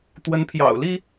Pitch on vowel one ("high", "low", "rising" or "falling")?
rising